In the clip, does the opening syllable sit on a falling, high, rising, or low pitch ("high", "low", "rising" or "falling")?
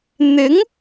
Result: rising